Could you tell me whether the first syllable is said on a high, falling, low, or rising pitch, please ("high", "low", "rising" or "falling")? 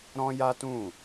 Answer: high